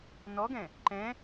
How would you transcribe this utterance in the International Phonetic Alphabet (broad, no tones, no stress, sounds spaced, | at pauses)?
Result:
n ɔ ɡ ɛ̃ | ǃ ɛ̃